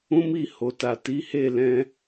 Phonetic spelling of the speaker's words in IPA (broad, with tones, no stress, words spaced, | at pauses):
ũ˦mi˦˨ ho˨ta˨ti˨˦ he˦˨lɛ̃˧